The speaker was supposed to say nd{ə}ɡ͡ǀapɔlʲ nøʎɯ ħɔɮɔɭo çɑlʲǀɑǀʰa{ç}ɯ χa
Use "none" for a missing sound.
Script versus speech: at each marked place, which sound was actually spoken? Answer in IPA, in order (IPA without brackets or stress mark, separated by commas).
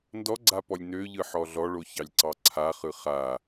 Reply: ɔ, χ